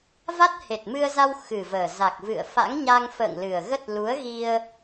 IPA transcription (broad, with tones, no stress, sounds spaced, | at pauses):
v a˦˥ t̚ h e˨˩ t̚ m ɨ˧ ə̯ z a˧ w x ɨ˨˩ v əː˨˩ z a˨˩ k̚ v ɨ̰˧˨ ə̯ f a̰˧˥ ŋ ɲ a˧ ŋ f ə̰ː˧˨ ŋ l ɨ˨˩ ə̯ ɣ ə˦˥ t̚ l u˨˦ ə̯ ɣ i˧ ə̯